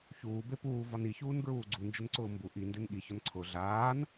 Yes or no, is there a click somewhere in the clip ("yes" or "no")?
yes